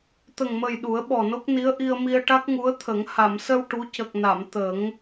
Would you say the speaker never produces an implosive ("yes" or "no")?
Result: no